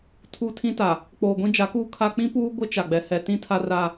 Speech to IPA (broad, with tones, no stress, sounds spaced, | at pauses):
tʰ u˨ tʰ ĩ˦ t a˨ | k͡p oː˨ ɡʷ ĩ˦ d͡ʒ a˨˦ k uː˦ kʰ a˦ k͡p ĩ˦ p uː˦ ɡʷ ɪ˦ t͡ʃ a˨ ɡ͡b ɛ˨ h ɛ˨ t ĩ˦ tʰ a˦ r a˦